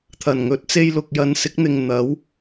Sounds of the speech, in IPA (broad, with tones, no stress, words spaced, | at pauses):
t̪ʰɐ˨˩nŋɵ˨˥t̚t͡se˧jlʊ˨k̚ jɐ˨nsɪ˨˥k̚n̪ɪ˨ŋ n̪ɐ˨˥w